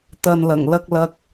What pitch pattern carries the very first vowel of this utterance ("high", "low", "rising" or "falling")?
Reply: low